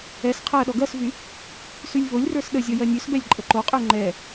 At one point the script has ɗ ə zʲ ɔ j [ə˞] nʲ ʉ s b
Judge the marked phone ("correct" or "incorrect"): incorrect